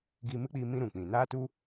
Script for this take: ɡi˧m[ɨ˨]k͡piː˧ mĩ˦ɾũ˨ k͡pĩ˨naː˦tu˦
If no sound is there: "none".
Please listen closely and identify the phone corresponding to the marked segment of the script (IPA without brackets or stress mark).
ɨ˦